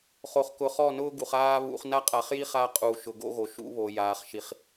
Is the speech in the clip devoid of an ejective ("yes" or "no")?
no